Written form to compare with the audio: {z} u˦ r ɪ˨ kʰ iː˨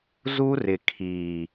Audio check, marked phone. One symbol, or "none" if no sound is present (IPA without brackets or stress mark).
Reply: z